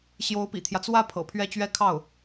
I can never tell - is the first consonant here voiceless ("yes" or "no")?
yes